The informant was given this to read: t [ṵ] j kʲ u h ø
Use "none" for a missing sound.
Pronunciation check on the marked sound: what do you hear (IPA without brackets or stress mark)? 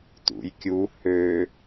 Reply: ṵ